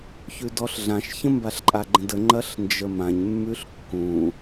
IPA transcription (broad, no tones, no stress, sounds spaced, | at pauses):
ç ʉ d ɔ ɬ ɮ ã ʃ ç ə̃ m b a ɬ ǃʼ a ɡ͡ǃ ə̃ d ə ŋ͡ǃ ɐ ɬ n d͡ʒ ə m ã ɲ mː ʉ ɬ kː ũ